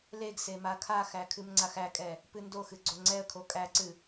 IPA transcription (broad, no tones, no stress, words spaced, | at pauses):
leɡse makʰaxæ kʰɨmŋ͡ǀaxækʼɛ | pɨndoxɨ ɡ͡ǀoŋ͡ǀɛə̯kʰo kʼæǀɨ